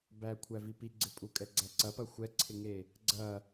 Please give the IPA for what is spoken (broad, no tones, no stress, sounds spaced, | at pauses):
b æ kʷʰ æ v i p i ɡ͡ǀ ɪ pʼ u kʼ ɛ ɡ͡ǀ æ ǀ ɐ p ɐ xʷ ɛ ǀʰ ɪ ŋ e | ɡ͡ǀ ɐ